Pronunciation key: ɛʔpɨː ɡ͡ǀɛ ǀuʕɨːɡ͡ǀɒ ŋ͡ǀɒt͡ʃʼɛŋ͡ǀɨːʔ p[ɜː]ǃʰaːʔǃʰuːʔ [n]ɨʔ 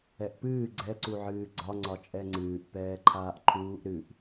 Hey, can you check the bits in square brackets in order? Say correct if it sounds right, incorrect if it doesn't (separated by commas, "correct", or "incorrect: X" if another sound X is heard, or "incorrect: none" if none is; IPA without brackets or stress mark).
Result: incorrect: ɛː, incorrect: ɾ